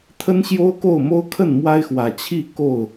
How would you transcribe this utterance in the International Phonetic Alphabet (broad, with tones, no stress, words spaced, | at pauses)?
t̪ʰə˦nɕjo˦ʊ̯ko˥˨ʊ̯mo˦ʊ̯ kʰə˥˨nmwa˦ɪ̯xwä˨˩ t͡ɕʰi˥˨ ko˥˨ʊ̯